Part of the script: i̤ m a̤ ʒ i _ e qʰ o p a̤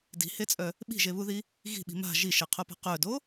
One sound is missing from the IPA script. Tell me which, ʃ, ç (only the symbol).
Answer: ʃ